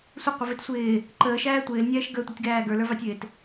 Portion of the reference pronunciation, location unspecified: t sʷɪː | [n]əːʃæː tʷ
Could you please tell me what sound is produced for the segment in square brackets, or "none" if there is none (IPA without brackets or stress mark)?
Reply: ǃ